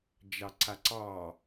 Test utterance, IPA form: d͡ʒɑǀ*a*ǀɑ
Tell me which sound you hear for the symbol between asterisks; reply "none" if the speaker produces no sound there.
a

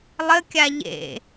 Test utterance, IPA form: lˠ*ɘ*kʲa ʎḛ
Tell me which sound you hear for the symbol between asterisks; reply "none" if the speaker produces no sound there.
ɘ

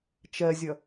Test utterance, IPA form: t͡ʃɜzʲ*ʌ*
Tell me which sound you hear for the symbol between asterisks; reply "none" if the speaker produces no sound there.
ʌ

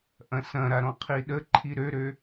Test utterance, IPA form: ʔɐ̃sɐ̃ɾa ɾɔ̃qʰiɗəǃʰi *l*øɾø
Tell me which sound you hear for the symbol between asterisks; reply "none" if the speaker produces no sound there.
ɾ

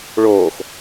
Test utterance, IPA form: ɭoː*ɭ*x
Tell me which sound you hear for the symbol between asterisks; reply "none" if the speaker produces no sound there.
none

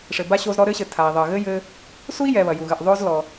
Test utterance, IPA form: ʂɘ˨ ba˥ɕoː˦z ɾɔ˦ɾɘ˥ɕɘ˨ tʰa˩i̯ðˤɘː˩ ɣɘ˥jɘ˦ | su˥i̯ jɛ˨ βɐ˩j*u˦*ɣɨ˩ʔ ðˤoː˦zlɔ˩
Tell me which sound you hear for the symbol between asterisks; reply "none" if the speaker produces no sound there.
u˩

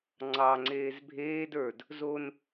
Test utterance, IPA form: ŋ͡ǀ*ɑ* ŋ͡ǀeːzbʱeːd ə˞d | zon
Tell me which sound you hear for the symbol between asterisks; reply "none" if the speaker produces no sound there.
ɑ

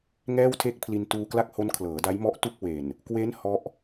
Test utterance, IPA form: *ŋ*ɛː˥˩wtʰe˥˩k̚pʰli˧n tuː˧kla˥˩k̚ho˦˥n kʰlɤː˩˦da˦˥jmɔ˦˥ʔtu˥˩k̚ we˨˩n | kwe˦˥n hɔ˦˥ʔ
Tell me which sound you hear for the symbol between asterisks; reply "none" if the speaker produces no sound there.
ŋ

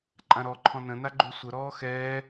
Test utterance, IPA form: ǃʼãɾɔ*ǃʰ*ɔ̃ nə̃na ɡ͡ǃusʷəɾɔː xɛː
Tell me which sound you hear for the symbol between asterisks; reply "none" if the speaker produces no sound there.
ǃʰ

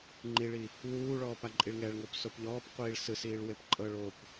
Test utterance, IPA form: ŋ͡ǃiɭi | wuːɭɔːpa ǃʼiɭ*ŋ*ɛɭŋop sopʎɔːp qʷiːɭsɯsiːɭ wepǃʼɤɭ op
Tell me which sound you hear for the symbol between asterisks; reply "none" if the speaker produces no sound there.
ŋ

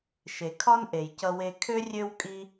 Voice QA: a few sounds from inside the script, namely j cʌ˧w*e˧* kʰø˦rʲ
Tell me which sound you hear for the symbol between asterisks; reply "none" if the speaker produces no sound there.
e˧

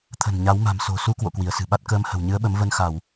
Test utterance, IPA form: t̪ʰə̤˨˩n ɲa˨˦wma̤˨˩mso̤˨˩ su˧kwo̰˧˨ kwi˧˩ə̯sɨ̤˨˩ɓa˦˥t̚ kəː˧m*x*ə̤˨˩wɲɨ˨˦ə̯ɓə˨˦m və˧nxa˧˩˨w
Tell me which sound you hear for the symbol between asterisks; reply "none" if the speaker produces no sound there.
h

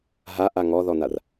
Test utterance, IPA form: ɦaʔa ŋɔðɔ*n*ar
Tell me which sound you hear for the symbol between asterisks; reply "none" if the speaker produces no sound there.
n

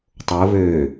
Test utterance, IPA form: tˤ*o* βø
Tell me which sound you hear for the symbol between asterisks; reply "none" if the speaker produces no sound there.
o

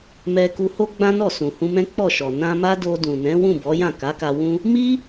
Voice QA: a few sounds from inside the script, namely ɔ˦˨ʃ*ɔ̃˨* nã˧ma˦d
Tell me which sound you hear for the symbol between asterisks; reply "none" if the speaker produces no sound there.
ɔ˨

